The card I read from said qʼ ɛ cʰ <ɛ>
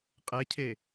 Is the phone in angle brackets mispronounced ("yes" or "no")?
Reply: yes